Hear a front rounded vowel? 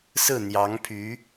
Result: yes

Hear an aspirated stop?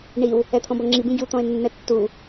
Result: yes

